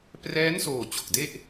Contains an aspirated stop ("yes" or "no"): no